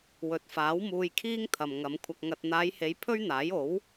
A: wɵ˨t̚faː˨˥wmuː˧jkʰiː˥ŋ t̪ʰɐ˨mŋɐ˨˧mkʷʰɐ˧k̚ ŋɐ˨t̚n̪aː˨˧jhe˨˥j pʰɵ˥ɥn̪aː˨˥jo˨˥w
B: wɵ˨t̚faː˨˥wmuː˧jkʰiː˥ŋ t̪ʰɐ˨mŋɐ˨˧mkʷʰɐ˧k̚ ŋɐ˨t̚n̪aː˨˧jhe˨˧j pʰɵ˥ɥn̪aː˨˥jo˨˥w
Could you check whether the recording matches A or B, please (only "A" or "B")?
B